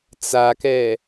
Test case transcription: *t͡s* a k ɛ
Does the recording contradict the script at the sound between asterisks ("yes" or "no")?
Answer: no